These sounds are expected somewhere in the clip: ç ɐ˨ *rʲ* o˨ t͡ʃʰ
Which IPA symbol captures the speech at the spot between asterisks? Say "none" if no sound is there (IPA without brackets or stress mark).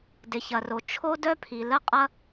r